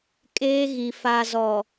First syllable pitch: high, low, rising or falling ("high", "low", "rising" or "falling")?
high